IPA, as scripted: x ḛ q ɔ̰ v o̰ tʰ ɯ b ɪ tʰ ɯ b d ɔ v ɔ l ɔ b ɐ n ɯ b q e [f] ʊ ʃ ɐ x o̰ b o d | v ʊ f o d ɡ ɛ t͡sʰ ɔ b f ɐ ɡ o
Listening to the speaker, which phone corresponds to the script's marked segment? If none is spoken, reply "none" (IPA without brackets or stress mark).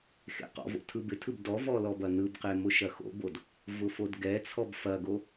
m